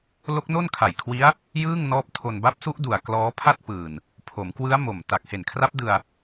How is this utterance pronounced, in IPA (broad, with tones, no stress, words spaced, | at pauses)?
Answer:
lo˦˥k̚no˥˩nkʰa˨˩jkʰwi˦˥a̯ | jɯː˥˩ŋnɔː˦˥p̚tʰo˧n ba˦˥p̚su˦˥ʔdu˨˩a̯ klɔː˦˥pʰa˥˩t̚pɯː˨˩n | pʰo˩˦mkwɯ˦˥a̯ mo˨˩m ta˨˩k̚he˨˩nkʰra˦˥p̚ dɯ˧a̯